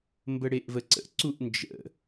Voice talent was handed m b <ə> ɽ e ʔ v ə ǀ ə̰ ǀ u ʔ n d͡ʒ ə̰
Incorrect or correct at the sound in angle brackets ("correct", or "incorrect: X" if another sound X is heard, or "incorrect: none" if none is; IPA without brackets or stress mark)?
correct